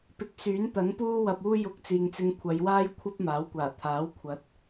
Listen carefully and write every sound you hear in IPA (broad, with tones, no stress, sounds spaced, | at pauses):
p ɪ˨˥ k̚ s yː˨˥ n t̪ ɐ˨˥ n p uː˥ w ɐ˧ p̚ uː˥ j ʊ˧ k̚ t͡s iː˨ ŋ t͡s ɪ˧ ŋ kʷʰ ɐ˨˧ j w aː˥ j kʷʰ ɐ˥ p̚ m aː˨˥ w kʷ aː˨˩ t̪ʰ aː˨˥ w kʷʰ ɐ˨˥ t̚